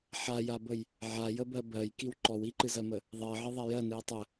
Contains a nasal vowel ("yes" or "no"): no